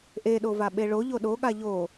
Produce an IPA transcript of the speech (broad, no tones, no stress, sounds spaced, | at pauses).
ʔ e ɗ o v a ɓ e ɭ o ʎ o ɗ o ɠ a ʎ o